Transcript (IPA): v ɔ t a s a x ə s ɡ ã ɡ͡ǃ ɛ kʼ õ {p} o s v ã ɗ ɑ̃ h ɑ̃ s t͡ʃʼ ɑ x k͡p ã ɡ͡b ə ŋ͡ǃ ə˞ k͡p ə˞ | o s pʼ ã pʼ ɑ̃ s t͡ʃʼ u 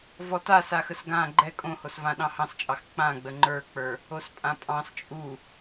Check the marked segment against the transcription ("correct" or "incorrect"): incorrect